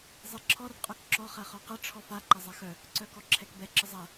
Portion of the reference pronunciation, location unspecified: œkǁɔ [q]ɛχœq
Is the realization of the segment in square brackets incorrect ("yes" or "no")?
yes